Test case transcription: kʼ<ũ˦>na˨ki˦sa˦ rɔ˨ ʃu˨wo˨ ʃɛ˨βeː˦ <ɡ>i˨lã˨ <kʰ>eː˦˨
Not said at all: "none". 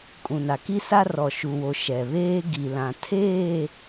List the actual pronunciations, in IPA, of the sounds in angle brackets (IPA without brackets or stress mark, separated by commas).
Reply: ũ˨, ɡ, tʰ